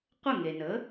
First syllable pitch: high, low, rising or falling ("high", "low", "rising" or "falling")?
falling